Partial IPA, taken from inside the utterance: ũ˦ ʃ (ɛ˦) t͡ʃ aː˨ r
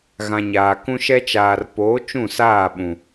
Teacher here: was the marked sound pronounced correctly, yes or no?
yes